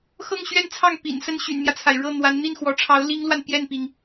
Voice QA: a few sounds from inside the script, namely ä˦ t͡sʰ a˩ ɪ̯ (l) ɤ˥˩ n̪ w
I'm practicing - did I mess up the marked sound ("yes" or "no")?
yes